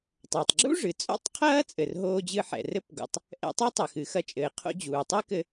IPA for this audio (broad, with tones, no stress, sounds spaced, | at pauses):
tˤ o˩ tˤ ɡ͡ǁ ṵ˥ ʐ ɨ˩ t͡sʼ o̰˥ tˤ qʰ ɐː˥ t͡sʼ ɘ˩ r ɦ oː˧ d͡ʑ ɨ˧ ħ ɛ̰˩ r ɘ˥ p ɡ o̰˩ tˤ | ʔ ɛ̰˧ tˤ ɛ˥ tˤ ɘ˩ x ɨ˩ x ɐ˧ t͡ʃʼ ɘː˩ qʰ o̰˧ d͡ʑ uː˩ tˤ ɛ˥ k ɘ˧